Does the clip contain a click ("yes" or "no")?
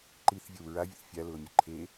yes